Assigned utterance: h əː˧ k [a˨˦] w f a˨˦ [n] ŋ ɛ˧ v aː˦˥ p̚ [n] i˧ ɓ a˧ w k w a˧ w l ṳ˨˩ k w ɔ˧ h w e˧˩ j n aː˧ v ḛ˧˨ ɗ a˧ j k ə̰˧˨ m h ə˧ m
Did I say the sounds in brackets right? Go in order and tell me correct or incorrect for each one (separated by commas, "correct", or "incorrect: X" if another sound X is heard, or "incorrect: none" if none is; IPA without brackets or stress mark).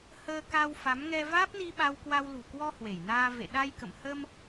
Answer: incorrect: a˧, incorrect: m, correct